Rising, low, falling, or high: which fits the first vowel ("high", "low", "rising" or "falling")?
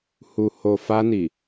low